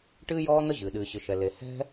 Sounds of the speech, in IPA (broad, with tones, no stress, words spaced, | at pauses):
ʈɨː˥jɔː˥n̪ə˥ ʑɨː˩ ɗɨː˩ɕɨ˩ʃɛ˩ le˩ hɛ̤˥